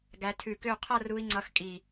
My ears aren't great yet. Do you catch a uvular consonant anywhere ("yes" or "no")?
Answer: yes